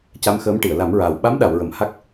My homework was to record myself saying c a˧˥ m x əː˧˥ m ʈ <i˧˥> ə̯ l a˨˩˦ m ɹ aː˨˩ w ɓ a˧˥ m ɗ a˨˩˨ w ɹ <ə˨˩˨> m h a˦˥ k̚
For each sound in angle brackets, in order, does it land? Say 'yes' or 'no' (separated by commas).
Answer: no, yes